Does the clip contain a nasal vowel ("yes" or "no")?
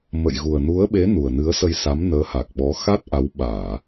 no